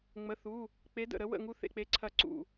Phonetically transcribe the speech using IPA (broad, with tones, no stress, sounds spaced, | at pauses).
ŋ͡m ə˩˧˩ θ u˩˧˩ | k͡p e˨˥ d ə̰˧˩ ɾ ə˨˥ w ə̰˥˩ ŋ u˦ θ ḛ˧˩ k͡p e˨˥ ǀʰ ɐ˧˩ ǀ ṵ˧˩